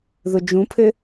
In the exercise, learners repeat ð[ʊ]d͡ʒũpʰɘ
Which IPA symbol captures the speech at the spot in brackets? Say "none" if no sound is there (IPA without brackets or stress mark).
ʊ